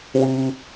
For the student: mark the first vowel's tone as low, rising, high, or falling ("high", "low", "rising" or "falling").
high